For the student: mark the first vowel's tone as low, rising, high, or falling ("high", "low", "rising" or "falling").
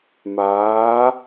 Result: rising